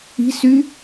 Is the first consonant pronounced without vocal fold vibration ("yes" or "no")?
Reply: yes